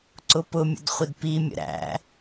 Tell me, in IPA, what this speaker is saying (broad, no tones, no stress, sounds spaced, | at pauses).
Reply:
ǀ ʊ p ʊ mʲ ə̰ d χʷ ɪ d p i mʲ ə̰ ɾ æ̰